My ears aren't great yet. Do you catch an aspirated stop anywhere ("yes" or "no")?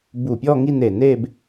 no